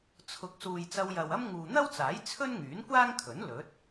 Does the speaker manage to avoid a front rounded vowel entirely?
no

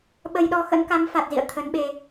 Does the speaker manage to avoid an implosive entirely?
no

